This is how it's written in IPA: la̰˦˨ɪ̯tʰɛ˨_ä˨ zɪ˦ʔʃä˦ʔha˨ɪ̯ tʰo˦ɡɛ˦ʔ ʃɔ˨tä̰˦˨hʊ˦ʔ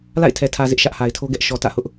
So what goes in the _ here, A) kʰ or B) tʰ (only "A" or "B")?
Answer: B